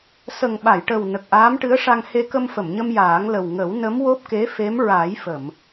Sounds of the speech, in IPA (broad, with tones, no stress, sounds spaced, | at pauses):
s ə˨˩ ŋ ɓ a˨˩˨ j ʈ ə˨˩ w n ə˨˩ k̚ ʔ aː˧˥ m ʈ ɨ˧˥ ə̯ ʂ a˧ ŋ h e˧ k ə˧ m f ə˨˩˨ m ɲ ə˧ m j aː˨˩˦ ŋ l ə˨˩ w ŋ ə˨˩˦ w n ə˧˥ m w o˦˥ p̚ k e˧˥ f e˧˥ m ɹ a˨˩˦ j f ə˨˩˨ m